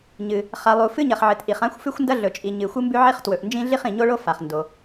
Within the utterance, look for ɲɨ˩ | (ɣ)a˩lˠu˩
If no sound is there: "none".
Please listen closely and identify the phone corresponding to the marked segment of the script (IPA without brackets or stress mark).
χ